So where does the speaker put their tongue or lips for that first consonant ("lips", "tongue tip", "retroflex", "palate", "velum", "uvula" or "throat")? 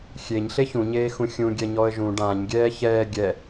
velum